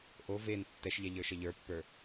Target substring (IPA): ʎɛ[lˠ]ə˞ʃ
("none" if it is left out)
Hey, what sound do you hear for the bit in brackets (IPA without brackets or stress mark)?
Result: ʎ